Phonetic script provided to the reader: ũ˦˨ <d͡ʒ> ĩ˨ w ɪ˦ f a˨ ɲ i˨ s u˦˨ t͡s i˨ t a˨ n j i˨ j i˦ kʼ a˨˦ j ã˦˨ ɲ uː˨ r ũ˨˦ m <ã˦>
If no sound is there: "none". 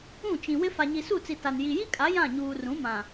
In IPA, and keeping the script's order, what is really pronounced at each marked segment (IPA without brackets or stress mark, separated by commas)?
t͡ʃ, ã˨